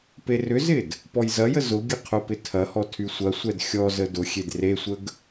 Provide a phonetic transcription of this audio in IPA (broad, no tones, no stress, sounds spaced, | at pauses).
p e r ʏ z ɪ d | p ɔ j z ɐ j ə z ʊ ɡʲ ə qʰ ʊ p ɪ tʰ ɐ h ɔ tʰ y sʷ ɐ sʷ ɛ d xʲ ɔ z ə d ʊ xʲ e d r e sʷ ə ɡ